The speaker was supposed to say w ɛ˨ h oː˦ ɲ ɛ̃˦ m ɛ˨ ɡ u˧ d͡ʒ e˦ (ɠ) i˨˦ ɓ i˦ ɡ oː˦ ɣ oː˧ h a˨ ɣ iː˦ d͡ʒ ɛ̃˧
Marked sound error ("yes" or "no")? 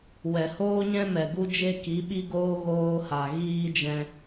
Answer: yes